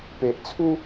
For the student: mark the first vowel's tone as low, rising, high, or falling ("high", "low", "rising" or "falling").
low